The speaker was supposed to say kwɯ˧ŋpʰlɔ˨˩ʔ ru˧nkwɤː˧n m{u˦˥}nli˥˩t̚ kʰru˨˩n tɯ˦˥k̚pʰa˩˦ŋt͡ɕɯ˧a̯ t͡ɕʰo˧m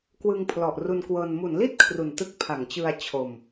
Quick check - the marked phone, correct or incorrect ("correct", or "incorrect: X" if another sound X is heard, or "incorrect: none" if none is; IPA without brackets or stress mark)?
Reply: incorrect: u˩˦